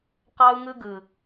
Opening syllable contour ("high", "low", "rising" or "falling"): high